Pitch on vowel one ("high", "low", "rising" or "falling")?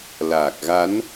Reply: low